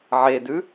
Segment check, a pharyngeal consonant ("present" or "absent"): present